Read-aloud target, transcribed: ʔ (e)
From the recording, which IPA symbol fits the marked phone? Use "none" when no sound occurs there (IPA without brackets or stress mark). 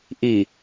i